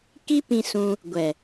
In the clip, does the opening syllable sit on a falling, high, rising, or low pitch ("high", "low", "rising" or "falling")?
high